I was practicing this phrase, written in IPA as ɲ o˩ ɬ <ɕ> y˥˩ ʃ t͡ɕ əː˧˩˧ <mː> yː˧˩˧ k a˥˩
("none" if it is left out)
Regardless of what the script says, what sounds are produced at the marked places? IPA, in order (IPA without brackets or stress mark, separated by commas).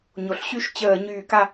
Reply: ɕ, ɲ